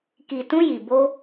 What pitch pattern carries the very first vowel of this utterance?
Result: low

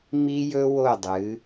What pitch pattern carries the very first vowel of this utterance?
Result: high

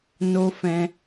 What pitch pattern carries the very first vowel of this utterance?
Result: high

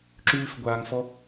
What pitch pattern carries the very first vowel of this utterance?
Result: high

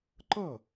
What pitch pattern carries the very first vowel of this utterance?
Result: falling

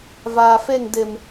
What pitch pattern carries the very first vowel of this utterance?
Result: low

